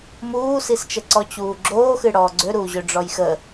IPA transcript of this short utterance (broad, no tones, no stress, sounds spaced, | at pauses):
m uː s i s t͡ʃ ə ǀ ɔ t͡ɕ uː ɡ͡ǁ oː x ɨ ɽ ɔː ɡ͡ǀ ø ɾ uː ʑ ø ɖ͡ʐ ɔ j x ə